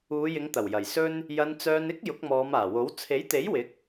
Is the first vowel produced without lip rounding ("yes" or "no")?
no